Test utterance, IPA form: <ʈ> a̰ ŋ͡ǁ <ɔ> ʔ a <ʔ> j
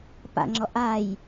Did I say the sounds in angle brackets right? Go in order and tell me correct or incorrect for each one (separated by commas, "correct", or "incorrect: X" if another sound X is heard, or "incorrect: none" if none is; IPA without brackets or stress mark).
incorrect: p, correct, incorrect: none